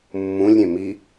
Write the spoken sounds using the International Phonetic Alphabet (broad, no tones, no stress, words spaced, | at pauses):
mːũlʲɾʲẽ mi